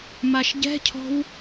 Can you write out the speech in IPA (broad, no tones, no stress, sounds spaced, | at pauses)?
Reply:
m a ʃ ɟ ɛ̤ cʰ ɔ̤ w